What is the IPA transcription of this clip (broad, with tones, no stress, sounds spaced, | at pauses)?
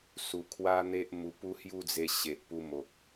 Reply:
s u˧ kʰ w a˦ n̪ e˦ ʔ m u˧ p u˦ h j u˥˧ d͡z e˧ ɕ e˨ ʔ p u˧ m o˨ k̚